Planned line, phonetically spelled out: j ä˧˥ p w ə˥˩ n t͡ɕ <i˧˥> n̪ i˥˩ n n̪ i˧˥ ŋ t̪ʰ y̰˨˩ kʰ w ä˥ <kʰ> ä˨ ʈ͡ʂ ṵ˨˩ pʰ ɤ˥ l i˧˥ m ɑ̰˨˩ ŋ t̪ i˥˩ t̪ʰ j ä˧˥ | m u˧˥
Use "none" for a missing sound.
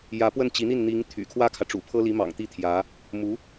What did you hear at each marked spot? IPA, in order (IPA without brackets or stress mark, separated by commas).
i˧˥, kʰ